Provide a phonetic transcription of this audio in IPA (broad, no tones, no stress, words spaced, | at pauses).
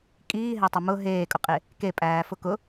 kʼiːɦætˤa mʊ ɦeːkʼʊqʼe | kepʼæːfʊ kʊ